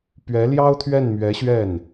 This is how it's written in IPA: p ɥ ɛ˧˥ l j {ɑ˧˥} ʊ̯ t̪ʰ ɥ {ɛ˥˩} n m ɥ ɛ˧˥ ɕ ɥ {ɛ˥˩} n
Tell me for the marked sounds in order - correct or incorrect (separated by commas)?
incorrect, correct, correct